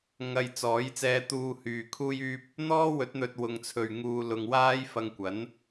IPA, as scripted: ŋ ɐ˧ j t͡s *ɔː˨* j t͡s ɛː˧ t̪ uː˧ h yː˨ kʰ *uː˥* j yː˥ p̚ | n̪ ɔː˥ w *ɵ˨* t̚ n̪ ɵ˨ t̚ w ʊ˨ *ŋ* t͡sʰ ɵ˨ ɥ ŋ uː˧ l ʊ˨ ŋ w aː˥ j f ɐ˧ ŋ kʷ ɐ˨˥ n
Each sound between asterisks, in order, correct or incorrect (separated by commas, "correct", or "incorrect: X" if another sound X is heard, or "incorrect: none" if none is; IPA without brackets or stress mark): incorrect: ɔː˨˥, correct, incorrect: ɵ˨˥, correct